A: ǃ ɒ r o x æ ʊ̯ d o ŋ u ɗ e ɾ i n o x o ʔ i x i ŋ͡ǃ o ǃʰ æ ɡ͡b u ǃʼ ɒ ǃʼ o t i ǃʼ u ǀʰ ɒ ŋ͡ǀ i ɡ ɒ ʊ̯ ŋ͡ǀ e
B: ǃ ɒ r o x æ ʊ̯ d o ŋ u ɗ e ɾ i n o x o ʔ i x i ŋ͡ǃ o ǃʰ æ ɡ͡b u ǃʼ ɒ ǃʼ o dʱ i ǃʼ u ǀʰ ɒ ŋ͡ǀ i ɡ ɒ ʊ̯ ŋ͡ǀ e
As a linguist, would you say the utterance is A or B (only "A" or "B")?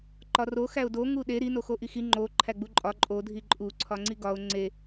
B